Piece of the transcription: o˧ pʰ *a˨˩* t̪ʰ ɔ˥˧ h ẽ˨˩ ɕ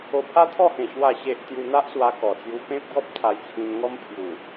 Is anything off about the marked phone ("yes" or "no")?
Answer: yes